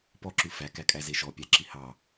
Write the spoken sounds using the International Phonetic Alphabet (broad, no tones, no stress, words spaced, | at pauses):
pɔǁʉ fækækʼæze ʃɔpʲæǁi hɑ